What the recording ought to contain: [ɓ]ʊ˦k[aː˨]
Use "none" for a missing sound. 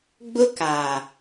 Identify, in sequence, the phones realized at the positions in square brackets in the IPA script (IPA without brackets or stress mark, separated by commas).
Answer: ɡ͡b, aː˨